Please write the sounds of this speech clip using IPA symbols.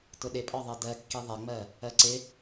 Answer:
tʊɗɪpʼɒðˤɜ dɜkːi ðˤɛŋ͡mɜ | ɜǀɪ

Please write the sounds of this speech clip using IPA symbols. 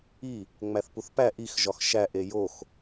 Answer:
i | ŋ͡mæθpuθpæ ʔix ʒɒxʃæ ʔejox

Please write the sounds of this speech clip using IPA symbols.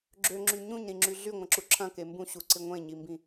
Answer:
ɡ͡ǁøŋ͡ǁy ɲũɲɾĩŋ͡ǁy ɮyŋʷɐ̃ǁu ǁʰɐ̃ke mbũɕuǀɪ ŋʷẽɲimbĩ

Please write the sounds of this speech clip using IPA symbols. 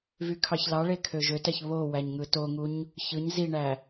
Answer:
vykʰɑçlɑɭe kʰøʒøtæç βo wæɲŋɯtoŋuɲ | çɯɲ ziɳæ

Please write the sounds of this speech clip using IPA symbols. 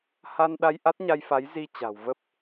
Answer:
ha˧n ɗa˧jʔa˦˥t̚ɲa˧jfa˨˦j zi˧t͡ɕa̤˨˩w və˦˥p̚

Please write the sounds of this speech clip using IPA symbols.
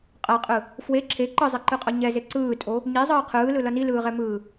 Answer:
qʼaqʼɯ | fwe ǁʰe ǃɯzˤeǃɯqʼʌ ɲɛze ǀɯːtʼo | ɲizˤɯː qʰɯːlɯlʌ nilɯːʁɛmɯː

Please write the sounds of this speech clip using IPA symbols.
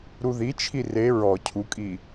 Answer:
ɾuðit͡ʃʰi re ɹɔ cʰukʼi

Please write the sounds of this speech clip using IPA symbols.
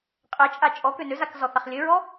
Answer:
qʼɛt͡ʃʼa t͡ʃʼɔ kønøzak zɔθaχlʲɘɹɔ

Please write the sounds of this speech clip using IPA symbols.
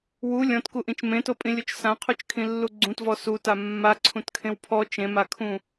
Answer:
wu lʲɔ̃tkuʔĩt͡ʃ mẽtopʼĩlʲot͡ʃ sãqʰut͡ʃkʰĩlːu ɡ͡ǀũtvɔ suta mːaǀʰũtkʰẽw pʰɔ t͡ʃẽmakʰũ

